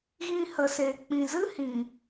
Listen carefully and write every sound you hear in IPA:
ɣ ĩ˧ h ə˨ s eː˨ k͡p ĩ˨ z ɨ˦ h ĩ˨

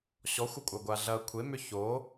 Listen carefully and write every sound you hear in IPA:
ɕ ɔ xʷ ɐ kʷʼ a ɡʷ a ɮ ɐ kʷʰ e m ʏ ç o

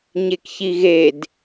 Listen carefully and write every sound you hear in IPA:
ɲ e k ç i ɣ e d

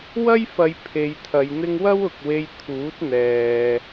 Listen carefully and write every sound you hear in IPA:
w ɐ˥ j f ɐ˨˧ j pʰ e˨˧ j t̪ʰ ɐ˨˧ j n̪ ɪ˥ ŋ w ɐ˥ w ʊ˨ k̚ w e˧ j t̪ʰ uː˨˥ t̚ n̪ ɛː˨

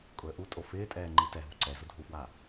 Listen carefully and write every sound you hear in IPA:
kʼ ʊ ə̯ ʔ u tʼ o f ɪː tʼ ɛː ŋ͡ǃ i t ɛ ɦ u ǀ ɛ z ʊ dʱ u f w a

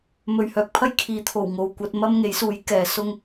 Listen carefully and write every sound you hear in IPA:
m ɵ˨ ɥ h œː˨ k̚ pʰ ɐ˥ j kʰ iː˨˧ t̪ʰ o˨˩ w ŋ o˨ w kʷ ɐ˧ t̚ m ɐ˥ m ŋ e˨˥ j s uː˨˥ j k ɛː˨ s ʊ˥ ŋ

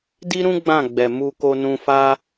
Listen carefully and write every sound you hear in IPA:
d i˦ ɾ ũ˦ ɡ͡b ã˦˨ ɡ͡b ɛ˨ m u˧ k o˧ n ũ˧ f a˦

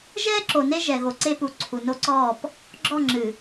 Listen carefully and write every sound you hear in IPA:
ʒ ɛː˦ ǁ o˨ n e˦ ʒ ɛ˨ ɣ o˨ ǀ e˦ p u˨ ǀʰ u˨ n o˦ ǀ ɔː˦˨ p | ɡ͡ǁ ɔ˦˨ ŋ͡ǁ ɨ˨

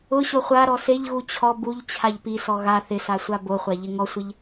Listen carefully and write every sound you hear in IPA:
ʊ ɕ o χʷ a ɾ ɔ s e ʎ ɣ u t͡ɕʰ ɔ b u ʎ t͡ɕʰ a ʎ p i s ɔ ɣ a θ ɪ s a sʷ a b o χʷ a ʎ ɪ ŋ ɔ sʷ ɪ ʎ

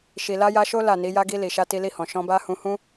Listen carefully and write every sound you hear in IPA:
ʃ i˨ l a˧ j a˧ ʃ o˦ l a˦˨ n i˨˦ j a˦ ɡ i˧ l i˨ ʃ a˧ t i˧ l i˧ h ɔ̃˨ ʃ ɔ̃˧ b a˦ h ũ˧ h ũ˦

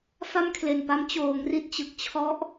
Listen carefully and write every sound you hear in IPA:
f a˥˩ m kʰ l e˨˩ n p a˦˥ m t͡ɕ oː˩˦ ŋ r i˦˥ t̚ t͡ɕ ɯ˨˩ k̚ t͡ɕʰ ɔ˦˥ ʔ

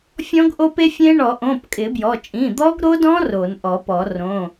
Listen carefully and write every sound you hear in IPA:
fʲ ɔ̃˦˥ ɡ ʔ o˦˥ p e˦˥ fʲ ẽ˦˥ ɳ ɔ˨˩˦ ʔ õ˩˧˩ p kʼ ɪ˨˩˦ b j ɔ˩˧˩ t͡ʃʼ ĩ˩˧˩ d̪ ɔ˦˥ ɡ ɾ o˦˥ d ɔ̃˦˥ r o˨˩˦ n ʔ ɔ˨˩˦ p ɔ˨˩˦ r õ˩˧˩

